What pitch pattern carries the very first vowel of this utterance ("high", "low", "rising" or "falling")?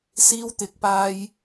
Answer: high